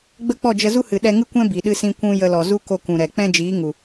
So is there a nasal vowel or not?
yes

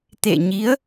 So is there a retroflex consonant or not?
no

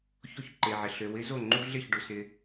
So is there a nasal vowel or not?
no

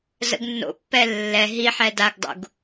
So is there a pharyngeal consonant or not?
yes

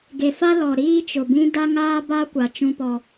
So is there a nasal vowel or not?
yes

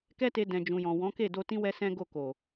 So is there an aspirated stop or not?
no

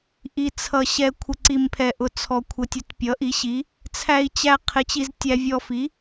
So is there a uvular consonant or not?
yes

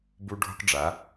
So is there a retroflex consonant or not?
yes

